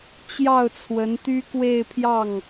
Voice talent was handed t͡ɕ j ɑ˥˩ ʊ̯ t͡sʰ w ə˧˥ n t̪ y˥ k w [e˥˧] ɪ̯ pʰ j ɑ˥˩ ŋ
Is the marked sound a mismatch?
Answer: no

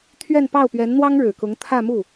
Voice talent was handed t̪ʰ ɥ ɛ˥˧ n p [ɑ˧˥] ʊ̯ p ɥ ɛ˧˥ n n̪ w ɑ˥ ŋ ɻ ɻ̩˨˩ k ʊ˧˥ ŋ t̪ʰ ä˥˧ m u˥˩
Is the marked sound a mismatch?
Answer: yes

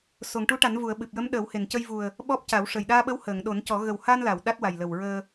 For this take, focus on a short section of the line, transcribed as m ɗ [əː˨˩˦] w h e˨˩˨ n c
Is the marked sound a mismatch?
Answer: no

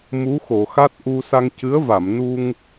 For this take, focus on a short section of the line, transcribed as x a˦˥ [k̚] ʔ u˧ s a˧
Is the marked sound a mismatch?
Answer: yes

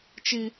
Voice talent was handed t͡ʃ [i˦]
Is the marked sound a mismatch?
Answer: no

